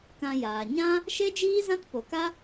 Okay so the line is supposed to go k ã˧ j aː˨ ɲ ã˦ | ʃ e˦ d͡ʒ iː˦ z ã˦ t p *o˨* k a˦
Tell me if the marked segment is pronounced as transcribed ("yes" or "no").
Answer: yes